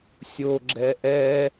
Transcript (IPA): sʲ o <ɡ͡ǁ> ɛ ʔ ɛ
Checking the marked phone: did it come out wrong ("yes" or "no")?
no